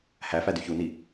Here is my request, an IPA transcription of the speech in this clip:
h æ f æ d y ç u n i

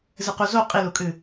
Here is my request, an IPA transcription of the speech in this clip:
z ɨ q u z o qʼ i l u kʼ ɨ

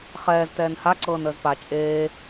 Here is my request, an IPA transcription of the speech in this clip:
χ ɛː z t ɛː n h a ǀ ɤː n əː z p a t͡ʃʼ eː

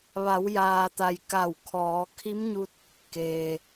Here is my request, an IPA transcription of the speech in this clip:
ʋ a˩˧ w j aː˩ t̪ a˩ j k a˧˩ w kʰ ɔː˩˧ kʰ i˧˥ m ɲ u˧ t̚ | k eː˩

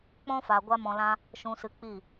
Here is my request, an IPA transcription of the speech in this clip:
k͡p ɔ̃˦ f a˨ ɡʷ a˦ m ɔ̃˧ l ã˦ | ʃ ũ˨ s ɨ˨ k͡p i˦˨

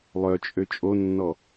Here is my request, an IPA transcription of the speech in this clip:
lˠ œ t͡ʃʼ ø t͡ʃʼ o nː ɔ

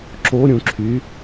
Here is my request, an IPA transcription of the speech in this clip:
ǁ o ɾʲ ũ ǁʰ y

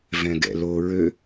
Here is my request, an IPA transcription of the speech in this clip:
v ɛ̃ ɡ ɛ̰ l o ɹ ø

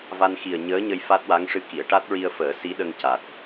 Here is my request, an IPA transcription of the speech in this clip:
v a˧ n x i˨˩ ə̯ ɲ əː˧˥ ɲ ə˧ j f a˦˥ t̚ w a˧˥ ŋ ʂ ɨ˧ k i˨˩˨ ə̯ ʈ a˦˥ t̚ ɹ i˧ ə̯ f əː˨˩˦ s i˧˥ ɗ ə˧ ŋ c a˨˩ t̚

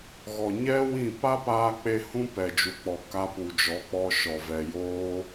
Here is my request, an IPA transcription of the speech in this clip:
ɣ ɔ˨ ɲ ɛ˦ w ĩ˦˨ p a˦ p aː˧ k͡p e˧ h ũ˦ p ɛ˨ d͡ʒ u˨ k͡p ɔ˨ k a˧ p u˨ d͡ʒ ɔ˨˦ k͡p ɔ˧ ʃ ɔ˨ v ɛ˨ j oː˦

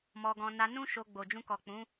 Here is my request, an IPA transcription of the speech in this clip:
m ɔ˧ ɡ ɔ̃˧ n a˧ n ũ˦ ʃ o˧ ɡ͡b o˨ d͡ʒ ũ˧ k ɔ˨ k͡p ũ˨˦

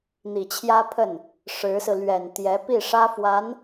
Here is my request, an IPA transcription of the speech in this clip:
n̪ i˨˩ t͡ɕʰ j ä˥ pʰ ə˥˩ n | ʂ ɻ̩˧˥ s ɹ̩˧ l ɥ ɛ˨˩ n t̪ j ɛ˧˥ p i˥˩ ʂ ä˥ f w a˧˥ n

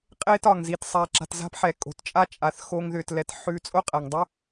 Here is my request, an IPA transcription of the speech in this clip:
qʼ eː˥ t ɒ˩ ŋ z i˨ t sˤ a˨ ǁ a̤˨ t z a̤˥ p ħ ɛ˨ kʼ o̤˩ t t͡ʃʼ a˥ t͡ʃʼ a˨ θ x o˦ ŋ ð ʏː˨ t l ɛ˨ t ħ ʉ˦ t͡sʼ o˥ qʼ æ˩ ŋ dˤ ʏ˥

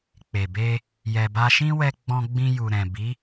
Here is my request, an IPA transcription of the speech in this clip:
k͡p e˨ b e˧ | j ɛ˧ b a˦ ʃ ĩ˦ w ɛ˧ ɡ͡b ɔ̃˧ ɡ͡b ĩ˧ j u˨ ɾ ɛ̃˨ b i˨˦

